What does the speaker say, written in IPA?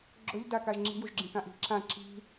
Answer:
ɡ͡ǁ ɵ ʎ d a k a ʒ ŋ͡ǁ i̤ j u ʒ ɡ͡ǁ ĩ k ã ʔ i̤ ǁ ã ǁ i̤

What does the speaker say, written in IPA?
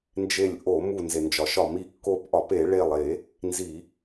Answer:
n d͡ʒ e˧˩ lʲ ʔ o˧˩˧ m u˧˩ n z e˩ n d͡ʒ ɒ˩ ʃ ɒ˧˩˧ m i˧˩ kː o˧˩ p ʔ ɒ˧˩˧ p e˧˩˧ ɭ e˧˩ lˠ e˧˩˧ | n z i˧˩˧

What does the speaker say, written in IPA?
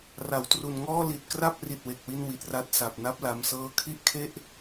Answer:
r a˩˦ w t r u˨˩ n ŋ ɔː˥˩ l i˨˩ t̚ k r a˥˩ p̚ r i˨˩ t̚ w e˨˩ k̚ w i˧ n w i˨˩ t̚ r a˥˩ t̚ s a˨˩ p̚ n a˦˥ p̚ l a˧ m s ɤː˧ kʰ i˥˩ ʔ kʰ e˥˩ ʔ

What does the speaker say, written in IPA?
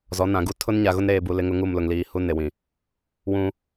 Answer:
z ɔ˨˦ n ã˨ ɡ u˦ tʰ ʊ˦ n ɲ a˨ ɣ ʊ˦ n ɾ eː˨ b u˨ l ɪ˦ ŋ ʊ˦ ŋ u˦˨ m l ʊ˨ ŋ l iː˨ h u˦ n e˨ w ĩ˨ | w ũ˦

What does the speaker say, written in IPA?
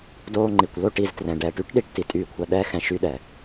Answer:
d oː˧ ŋ͡ǃ i˨ kʷ l o˦˨ ʈ i˦˨ z t r ɛ̃˨ ɖ ɛː˨ ʈ y˦ ʈ ɗ i˧ ʈ t i˨ tʼ yː˧ kʷʰ ɐ˧ ɗ ɛː˦ x ɛ̃˧ ʃ y˦ ɗ ɛ˨

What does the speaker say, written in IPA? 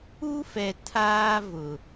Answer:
u˦ f ɛ˨ tʰ aː˦ v ʊ˨

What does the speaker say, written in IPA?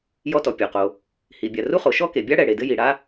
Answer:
j ɔ˥ t ɔ˩ pʲ o˩ q o˩ | h i˩ bʲ a˩ r u˥ χ o˩ ʃ ɔ˥ k e˩ bʲ a˥ ɽ ɛ˩ ɽ e˩ d ɘ˥ j i˩ ɽ a˥

